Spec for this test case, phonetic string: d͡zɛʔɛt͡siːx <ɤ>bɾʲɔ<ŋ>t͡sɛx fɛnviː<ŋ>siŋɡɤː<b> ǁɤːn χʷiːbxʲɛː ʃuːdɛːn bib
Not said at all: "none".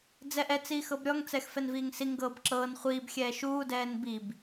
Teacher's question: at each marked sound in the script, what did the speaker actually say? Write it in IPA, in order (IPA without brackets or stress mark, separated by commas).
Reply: ɤ, ŋ, ŋ, b